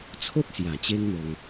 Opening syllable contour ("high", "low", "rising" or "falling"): high